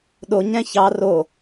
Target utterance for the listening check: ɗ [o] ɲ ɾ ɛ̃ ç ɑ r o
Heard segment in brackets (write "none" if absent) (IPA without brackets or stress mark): o